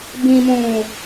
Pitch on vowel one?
low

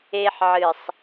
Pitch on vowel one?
high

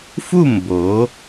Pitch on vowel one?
falling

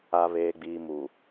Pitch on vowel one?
low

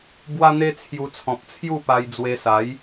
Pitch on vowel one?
high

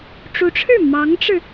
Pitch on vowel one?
rising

